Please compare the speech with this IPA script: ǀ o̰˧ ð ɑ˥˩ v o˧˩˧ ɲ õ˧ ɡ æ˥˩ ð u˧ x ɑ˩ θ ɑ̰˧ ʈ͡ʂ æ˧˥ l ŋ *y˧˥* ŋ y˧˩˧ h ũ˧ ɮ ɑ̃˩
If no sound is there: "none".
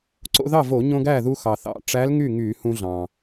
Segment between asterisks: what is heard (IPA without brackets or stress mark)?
y˥˩